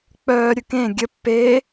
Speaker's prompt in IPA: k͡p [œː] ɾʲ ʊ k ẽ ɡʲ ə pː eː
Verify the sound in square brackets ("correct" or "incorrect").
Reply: correct